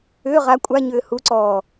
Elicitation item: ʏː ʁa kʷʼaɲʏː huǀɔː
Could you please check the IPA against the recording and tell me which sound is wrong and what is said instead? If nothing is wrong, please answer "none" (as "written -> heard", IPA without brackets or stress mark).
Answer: none